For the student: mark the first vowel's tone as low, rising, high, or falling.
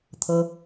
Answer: high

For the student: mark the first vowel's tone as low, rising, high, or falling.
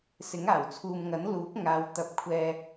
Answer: rising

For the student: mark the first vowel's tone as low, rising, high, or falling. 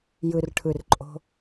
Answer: low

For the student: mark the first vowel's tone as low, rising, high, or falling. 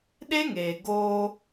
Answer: high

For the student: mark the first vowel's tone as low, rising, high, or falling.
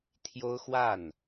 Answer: high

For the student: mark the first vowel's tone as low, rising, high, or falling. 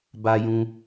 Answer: high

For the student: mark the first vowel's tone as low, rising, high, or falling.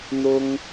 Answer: high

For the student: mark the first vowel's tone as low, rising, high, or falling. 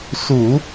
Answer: low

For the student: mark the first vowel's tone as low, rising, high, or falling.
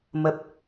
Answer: low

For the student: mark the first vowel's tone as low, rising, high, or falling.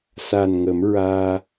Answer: low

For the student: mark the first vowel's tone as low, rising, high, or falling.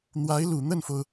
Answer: rising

